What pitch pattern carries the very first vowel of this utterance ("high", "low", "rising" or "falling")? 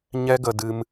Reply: high